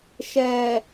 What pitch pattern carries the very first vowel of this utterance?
low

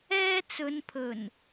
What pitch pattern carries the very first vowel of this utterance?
high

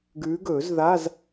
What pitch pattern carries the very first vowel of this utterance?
rising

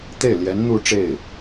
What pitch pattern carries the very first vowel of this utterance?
falling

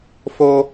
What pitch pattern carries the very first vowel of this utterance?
high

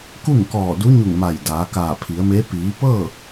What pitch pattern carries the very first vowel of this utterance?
falling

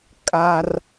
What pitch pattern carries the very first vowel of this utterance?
high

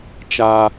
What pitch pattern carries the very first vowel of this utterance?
high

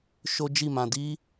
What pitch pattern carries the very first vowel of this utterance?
high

